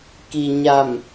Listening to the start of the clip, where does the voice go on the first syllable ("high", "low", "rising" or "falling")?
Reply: low